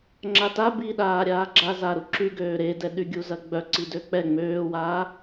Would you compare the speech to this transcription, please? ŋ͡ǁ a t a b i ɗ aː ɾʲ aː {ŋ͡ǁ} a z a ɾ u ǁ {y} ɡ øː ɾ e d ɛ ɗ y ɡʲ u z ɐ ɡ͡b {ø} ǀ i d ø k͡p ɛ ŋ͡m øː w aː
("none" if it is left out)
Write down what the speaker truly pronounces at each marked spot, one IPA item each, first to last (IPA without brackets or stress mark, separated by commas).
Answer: ɡ͡ǁ, y, œ